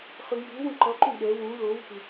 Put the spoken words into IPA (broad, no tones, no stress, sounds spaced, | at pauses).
χ ɯ j u w ũ ǃ ʌ ǃ ũ ɠ ɛ w ũ l o w i̤ w